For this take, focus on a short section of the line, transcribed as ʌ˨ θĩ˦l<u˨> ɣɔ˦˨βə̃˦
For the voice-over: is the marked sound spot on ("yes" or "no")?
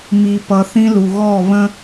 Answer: yes